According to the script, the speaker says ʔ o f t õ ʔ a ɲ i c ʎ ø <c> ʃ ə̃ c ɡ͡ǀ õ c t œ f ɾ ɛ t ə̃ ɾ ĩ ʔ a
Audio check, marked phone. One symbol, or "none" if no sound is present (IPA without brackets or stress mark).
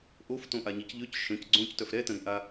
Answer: c